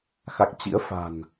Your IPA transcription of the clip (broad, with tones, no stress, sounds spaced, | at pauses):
x a˨˩ k̚ t͡ɕ ḭ˧˥ ə̯ f a̤˨˩ n